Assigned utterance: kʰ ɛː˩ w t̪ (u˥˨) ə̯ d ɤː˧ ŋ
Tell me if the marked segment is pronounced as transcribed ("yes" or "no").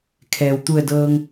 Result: no